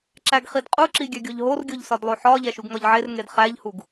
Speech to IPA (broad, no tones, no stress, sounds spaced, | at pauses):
ǁ æ ɡ χ i d qʼ u ǁ i ɡʲ æ ɡʲ o ʎ ɦ o r ɡʲ o ʎ s ɒ d lˠ o ħ ɒ ʎ æ ʃ u ɡ ŋ ɒ ʎ ʕ e r ŋ e d χ æ ʎ h u ɡ